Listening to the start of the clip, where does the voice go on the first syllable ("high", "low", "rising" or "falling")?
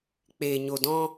low